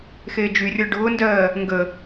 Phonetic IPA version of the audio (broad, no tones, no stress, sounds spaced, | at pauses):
x eː d͡ʒ y rʲ ɔ ɖ ʊː n d ɜː | ŋ ɡ ə